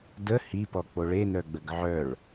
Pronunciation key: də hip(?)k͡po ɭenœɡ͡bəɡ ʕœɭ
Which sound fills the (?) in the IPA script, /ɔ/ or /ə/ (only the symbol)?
ɔ